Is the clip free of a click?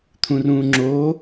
no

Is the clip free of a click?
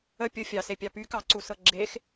no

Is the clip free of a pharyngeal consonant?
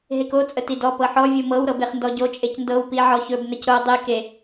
no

